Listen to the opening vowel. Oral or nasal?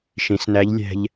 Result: nasal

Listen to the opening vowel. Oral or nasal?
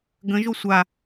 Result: nasal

